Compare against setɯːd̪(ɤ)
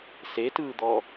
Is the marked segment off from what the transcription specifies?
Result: yes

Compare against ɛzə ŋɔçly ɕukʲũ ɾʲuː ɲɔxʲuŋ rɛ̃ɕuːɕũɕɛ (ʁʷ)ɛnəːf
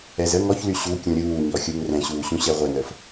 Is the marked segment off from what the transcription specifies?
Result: no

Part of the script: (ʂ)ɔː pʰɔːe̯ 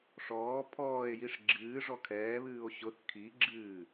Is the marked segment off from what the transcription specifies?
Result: no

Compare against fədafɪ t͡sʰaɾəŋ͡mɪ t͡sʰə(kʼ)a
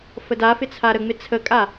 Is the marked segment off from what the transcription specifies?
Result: no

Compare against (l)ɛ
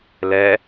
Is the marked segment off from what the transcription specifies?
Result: no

